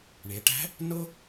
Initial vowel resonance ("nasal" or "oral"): oral